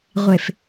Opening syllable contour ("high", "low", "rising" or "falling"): low